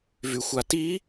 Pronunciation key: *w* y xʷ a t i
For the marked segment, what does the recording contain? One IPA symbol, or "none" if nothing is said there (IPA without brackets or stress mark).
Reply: v